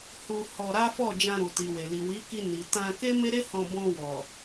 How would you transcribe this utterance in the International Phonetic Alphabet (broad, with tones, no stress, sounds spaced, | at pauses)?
h u˧ h ɔ˧ ɾ a˦ f ɔ˦˨ d͡ʒ ã˧ ɾ u˨ t i˨ w e˨ l i˨ w i˨˦ k i˧ n i˨ t ã˧ k e˦ m e˦ ɾ e˦ h ɔ̃˧ b ɔ̃˧ w ɔ˨